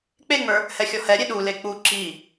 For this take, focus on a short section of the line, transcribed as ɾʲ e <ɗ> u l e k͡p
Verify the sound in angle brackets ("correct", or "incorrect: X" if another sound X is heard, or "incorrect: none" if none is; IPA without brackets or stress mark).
correct